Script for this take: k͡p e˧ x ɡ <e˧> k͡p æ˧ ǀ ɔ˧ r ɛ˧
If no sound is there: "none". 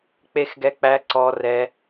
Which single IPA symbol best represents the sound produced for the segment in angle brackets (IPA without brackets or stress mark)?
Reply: ɛ˧